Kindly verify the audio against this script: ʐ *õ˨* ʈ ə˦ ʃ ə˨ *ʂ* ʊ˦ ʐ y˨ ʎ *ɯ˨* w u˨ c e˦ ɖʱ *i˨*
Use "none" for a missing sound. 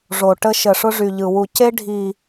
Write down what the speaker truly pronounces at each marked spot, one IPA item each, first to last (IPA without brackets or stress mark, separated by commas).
o˨, ʂ, ɯ˨, i˨